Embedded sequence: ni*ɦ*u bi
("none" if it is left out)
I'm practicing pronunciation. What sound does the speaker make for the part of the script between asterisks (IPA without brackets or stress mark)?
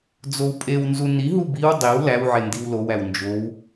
ɦ